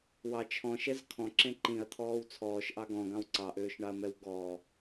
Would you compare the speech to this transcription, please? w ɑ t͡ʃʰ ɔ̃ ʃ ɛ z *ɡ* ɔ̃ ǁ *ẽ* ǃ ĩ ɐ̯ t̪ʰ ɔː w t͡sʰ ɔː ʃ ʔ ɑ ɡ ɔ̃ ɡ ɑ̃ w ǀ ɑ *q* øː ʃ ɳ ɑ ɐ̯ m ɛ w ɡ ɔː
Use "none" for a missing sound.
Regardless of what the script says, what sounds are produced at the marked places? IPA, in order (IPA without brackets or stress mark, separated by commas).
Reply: kʰ, ẽ, ʔ